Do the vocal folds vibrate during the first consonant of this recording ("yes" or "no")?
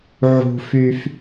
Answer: yes